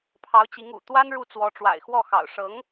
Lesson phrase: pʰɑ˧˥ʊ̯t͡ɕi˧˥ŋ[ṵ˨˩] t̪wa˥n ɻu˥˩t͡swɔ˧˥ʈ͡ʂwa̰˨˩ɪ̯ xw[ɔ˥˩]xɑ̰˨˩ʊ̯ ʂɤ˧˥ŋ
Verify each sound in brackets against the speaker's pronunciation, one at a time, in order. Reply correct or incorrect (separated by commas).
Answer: correct, correct